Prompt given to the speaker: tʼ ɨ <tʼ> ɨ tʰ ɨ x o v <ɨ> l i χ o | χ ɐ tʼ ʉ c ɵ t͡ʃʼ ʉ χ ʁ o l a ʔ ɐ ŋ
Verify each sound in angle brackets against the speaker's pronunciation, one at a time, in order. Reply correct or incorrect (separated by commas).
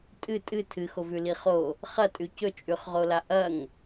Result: correct, incorrect